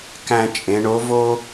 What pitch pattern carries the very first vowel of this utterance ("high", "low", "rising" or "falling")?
high